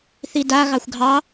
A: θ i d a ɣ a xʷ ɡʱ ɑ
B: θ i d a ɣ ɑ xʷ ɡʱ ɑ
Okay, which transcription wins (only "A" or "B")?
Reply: B